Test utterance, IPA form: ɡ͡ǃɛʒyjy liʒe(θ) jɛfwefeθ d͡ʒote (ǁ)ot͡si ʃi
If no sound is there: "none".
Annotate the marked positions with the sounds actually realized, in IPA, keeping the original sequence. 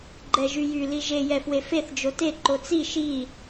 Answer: none, ǃ

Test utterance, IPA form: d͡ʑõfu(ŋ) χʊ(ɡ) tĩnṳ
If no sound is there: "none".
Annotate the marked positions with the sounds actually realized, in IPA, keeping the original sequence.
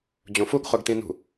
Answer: ɡ, ɡ

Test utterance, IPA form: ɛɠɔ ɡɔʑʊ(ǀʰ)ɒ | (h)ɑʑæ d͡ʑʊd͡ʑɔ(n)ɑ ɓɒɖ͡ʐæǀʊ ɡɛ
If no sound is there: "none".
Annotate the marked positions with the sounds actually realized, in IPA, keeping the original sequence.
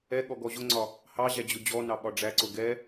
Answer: ŋ͡ǀ, h, n

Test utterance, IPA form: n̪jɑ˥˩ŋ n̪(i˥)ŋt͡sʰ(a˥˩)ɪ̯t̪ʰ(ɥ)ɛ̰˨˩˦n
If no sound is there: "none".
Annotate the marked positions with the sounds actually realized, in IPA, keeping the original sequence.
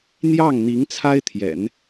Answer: i˧˥, a˥, j

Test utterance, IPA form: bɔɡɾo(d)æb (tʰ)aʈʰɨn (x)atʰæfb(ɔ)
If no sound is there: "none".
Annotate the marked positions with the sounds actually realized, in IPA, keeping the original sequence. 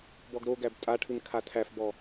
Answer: ɡ, tʼ, kʰ, ɔ

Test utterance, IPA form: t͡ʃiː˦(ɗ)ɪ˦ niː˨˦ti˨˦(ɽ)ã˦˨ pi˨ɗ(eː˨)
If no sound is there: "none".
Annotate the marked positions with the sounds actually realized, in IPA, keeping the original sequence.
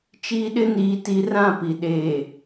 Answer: ɗ, r, eː˨

